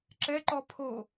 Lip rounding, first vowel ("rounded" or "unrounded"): unrounded